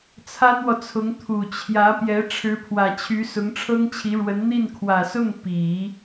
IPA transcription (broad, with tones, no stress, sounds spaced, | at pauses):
t͡sʰ a˥ n w ɔ˨ t͡sʰ ʊ˧˥ ŋ t̪ʰ u˨˩ t͡ɕʰ j ä˧˥ p j ɛ˧˥ ʈ͡ʂʰ ɻ̩˧˥ pʰ w ä˨˩ t͡ɕʰ y˧˥ s ʊ˧˥ ŋ ʈ͡ʂʰ ɤ˥ ŋ t͡ɕʰ i˧˥ ɻ w ə˧˥ n n̪ i˥˩ n kʰ w ä˨˩ s ʊ˥˩ ŋ p i˨˩˦